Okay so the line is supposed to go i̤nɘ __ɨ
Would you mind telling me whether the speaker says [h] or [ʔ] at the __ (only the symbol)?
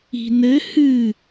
h